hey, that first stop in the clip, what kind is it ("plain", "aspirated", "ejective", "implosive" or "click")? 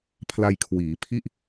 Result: aspirated